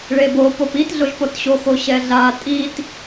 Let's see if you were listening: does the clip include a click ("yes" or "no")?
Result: no